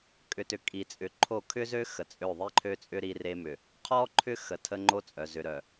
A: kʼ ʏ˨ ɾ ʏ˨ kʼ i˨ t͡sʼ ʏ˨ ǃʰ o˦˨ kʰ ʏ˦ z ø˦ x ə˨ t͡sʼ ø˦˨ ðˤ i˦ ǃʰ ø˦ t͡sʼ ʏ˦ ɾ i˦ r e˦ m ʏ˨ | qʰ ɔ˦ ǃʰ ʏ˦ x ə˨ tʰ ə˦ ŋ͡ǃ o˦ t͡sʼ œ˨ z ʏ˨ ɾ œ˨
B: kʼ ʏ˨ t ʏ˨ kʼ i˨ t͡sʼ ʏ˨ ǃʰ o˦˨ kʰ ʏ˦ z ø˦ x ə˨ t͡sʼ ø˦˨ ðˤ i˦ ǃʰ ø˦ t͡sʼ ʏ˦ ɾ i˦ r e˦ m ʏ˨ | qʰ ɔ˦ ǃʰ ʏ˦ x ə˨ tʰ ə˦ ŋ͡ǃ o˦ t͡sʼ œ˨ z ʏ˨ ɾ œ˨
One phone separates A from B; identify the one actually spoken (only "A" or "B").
B